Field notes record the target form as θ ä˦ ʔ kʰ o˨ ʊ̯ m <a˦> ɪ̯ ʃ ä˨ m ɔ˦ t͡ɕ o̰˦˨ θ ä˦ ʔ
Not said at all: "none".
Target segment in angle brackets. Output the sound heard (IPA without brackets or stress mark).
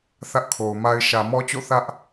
a˦